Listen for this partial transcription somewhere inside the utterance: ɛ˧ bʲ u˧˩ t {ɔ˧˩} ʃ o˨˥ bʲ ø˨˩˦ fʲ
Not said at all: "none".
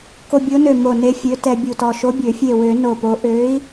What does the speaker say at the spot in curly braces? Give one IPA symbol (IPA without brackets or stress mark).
ɔ˧˩